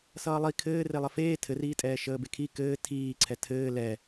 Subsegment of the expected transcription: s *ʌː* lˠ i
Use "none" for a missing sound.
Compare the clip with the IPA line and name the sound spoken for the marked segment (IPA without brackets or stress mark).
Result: ʌː